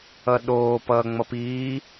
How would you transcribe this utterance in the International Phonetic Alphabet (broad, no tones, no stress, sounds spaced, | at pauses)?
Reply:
ʌ ɗ oː p ʌː ŋ͡m ʌ p iː